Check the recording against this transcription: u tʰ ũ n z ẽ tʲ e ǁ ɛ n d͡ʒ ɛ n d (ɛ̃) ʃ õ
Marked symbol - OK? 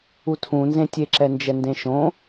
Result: no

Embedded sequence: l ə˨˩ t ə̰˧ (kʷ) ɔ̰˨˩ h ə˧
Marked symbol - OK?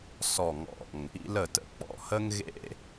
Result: no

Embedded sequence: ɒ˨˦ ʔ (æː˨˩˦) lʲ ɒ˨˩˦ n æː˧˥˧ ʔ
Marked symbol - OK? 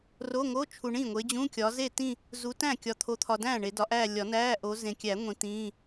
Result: no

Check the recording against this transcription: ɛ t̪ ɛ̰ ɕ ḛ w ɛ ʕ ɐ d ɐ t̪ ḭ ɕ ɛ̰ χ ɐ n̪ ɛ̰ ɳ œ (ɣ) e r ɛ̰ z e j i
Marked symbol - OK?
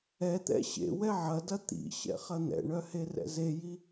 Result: no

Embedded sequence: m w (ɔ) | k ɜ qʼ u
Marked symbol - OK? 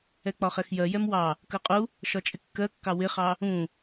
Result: no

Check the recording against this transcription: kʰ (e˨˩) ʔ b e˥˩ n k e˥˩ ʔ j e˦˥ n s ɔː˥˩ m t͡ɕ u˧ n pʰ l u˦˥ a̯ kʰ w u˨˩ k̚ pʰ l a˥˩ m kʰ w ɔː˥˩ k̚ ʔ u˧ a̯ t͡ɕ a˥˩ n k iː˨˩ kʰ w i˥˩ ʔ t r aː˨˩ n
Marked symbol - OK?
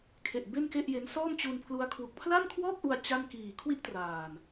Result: yes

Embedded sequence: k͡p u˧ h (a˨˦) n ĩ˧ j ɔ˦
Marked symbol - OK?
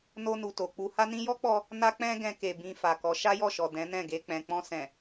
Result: no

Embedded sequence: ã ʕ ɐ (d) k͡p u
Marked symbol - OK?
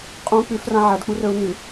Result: yes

